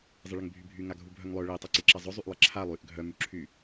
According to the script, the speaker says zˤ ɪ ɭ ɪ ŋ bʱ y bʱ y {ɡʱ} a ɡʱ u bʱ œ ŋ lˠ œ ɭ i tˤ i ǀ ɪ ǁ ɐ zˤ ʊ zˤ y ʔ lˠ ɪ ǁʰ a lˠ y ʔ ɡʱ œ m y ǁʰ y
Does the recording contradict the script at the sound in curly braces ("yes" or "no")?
yes